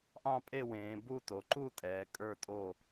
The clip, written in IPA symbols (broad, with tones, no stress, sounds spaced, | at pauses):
ʔ ɑ̃˥˨ pʼ e˥˨ w ẽː˩˧ b u˥˨ t o˩˧ ǃ u˥˨ tʼ ɛː˩˧ kʼ ə˞˥˨ tʼ o˥˨